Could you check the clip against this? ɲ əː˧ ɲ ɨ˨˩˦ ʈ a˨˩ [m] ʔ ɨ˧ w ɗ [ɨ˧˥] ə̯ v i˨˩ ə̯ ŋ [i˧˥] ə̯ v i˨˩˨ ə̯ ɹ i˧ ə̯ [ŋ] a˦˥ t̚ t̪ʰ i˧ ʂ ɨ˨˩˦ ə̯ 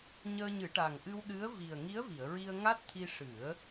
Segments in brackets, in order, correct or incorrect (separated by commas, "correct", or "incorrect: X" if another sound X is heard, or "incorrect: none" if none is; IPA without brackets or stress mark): incorrect: ŋ, correct, correct, correct